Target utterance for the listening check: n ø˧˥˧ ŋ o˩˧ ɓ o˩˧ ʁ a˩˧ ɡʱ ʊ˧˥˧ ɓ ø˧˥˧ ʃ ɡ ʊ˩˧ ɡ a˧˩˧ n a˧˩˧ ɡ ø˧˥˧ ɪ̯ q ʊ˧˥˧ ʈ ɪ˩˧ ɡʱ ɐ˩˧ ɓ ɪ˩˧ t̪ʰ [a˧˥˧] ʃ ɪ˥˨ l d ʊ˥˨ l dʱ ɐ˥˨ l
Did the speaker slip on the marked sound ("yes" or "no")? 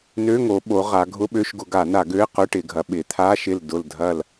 no